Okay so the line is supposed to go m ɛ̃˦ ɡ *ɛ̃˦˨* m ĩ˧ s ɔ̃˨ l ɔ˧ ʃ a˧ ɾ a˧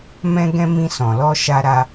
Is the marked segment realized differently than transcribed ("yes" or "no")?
yes